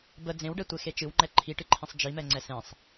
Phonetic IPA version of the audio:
b ə d͡z ẽ w ɖ ɛ tʷ e x e t͡ʃ ɨ w ŋ͡ǃ ɛ ǃʰ i ʈ ɨ ǃʰ ĩ sˤ d͡ʒ i m ɛ ŋ͡ǀ ɛ s ẽ sˤ

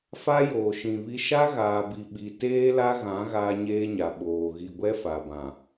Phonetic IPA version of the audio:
f a˦ j oː˨ ʃ ĩ˨ β i˦ ʃ a˦ ɣ aː˨ b i˨ ɓ i˨ t eː˦ l a˦ ɣ ã˨˦ ɣ aː˦ ɲ eː˦ ɲ a˨ ɓ oː˨ ɣ i˨ ɡʷ ɛ˦ f a˨ b ã˨

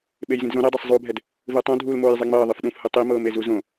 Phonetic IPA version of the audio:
ɓ e j z ĩ d z õ ɾ e dˤ ɤ sˤ zˤ uː bʱ ɛ d | v ɯ tˤ õ dʱ uː l m oː j zˤ e ŋ͡m ɤː ðˤ ɯ f ɗ ũ f h ɯ tˤ i m ɤː m e z u z õ

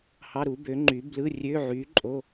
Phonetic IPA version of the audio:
h ɑ˧˥˧ ɾ u˨˥ b ø˨˥ ŋ͡ǃ y˨˥ b l ɯ˧˥˧ rʲ ø˧˥˧ ʕ y˨˥ ǃʼ o˧˥˧

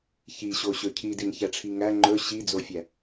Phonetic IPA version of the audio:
ç i ɕ o ɕ ɵ cʰ i d i n ç æ ʈ͡ʂʰ i ŋ æ ŋ͡ǃ ɵ ɕ i d͡z o fʲ æ

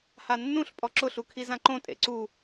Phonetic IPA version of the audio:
h a nː ũ ɬ pʼ ɔ ǁ ʊ ɬ u kʰ i z ã ǃ õ tʼ ḛ ǀ u

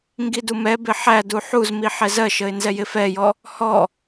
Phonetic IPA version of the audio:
ŋ ɡ i d u m ɛ b ɪ ħ æ d u ħ u z m i ħ ɛ z ɜ ʃ ə ɪ̯ n z ɛ j ɪ f ɛ j ɔ | h ɔ

